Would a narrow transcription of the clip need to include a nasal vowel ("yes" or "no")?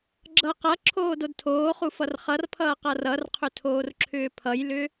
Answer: no